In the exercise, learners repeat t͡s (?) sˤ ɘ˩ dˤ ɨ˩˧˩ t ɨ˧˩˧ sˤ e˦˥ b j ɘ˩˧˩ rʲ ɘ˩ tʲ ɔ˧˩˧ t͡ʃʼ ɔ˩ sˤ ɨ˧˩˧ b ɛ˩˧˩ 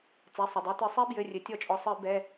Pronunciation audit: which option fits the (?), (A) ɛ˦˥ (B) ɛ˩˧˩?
B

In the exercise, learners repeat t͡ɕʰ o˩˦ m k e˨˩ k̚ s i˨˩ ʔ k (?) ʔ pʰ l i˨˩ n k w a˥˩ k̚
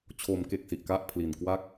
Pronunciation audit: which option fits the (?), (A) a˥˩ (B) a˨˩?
A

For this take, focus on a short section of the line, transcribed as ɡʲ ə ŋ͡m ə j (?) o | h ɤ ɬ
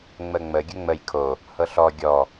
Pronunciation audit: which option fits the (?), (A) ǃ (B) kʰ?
B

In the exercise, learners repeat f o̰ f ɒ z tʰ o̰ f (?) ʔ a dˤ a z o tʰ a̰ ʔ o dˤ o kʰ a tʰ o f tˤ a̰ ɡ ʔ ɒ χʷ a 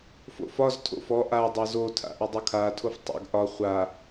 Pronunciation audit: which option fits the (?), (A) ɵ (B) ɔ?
B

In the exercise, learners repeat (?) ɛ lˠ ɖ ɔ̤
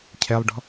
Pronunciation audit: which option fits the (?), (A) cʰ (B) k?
A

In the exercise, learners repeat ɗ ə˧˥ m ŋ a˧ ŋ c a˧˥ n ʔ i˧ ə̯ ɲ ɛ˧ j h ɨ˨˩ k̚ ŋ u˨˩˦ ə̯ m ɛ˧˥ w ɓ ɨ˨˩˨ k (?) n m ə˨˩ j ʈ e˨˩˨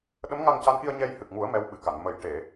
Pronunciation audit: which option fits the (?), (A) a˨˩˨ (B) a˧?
A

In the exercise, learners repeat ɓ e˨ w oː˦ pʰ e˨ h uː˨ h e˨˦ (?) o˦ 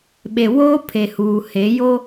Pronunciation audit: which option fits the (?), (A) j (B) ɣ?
A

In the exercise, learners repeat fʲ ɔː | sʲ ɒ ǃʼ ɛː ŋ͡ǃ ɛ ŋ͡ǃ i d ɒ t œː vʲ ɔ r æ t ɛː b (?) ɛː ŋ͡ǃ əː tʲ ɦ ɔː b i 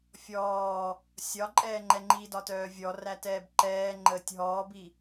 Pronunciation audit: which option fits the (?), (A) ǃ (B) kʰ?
A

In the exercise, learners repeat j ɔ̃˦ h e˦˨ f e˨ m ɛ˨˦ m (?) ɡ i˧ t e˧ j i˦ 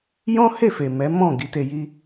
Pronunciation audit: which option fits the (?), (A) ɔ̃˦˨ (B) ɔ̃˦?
A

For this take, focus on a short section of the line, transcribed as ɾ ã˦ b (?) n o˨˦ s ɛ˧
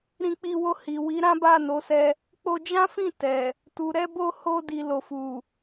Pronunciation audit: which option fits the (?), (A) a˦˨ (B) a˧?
A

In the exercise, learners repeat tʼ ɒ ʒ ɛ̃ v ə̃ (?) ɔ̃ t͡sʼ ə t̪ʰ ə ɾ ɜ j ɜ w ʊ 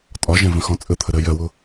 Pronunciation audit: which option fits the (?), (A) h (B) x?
B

